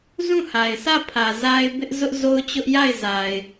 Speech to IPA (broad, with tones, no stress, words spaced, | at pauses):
zũ˦˨ha˨ɪ̯sä˦˨pʰä˨ za˦ɪ̯bɪ˦ʔ zʊ˦ʔzo˦ʊ̯ t͡ɕʊ˦ʔja˦˨ɪ̯ za˨ɪ̯